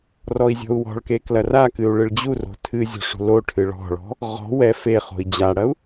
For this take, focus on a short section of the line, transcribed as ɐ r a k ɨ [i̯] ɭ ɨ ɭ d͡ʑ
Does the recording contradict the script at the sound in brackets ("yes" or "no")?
yes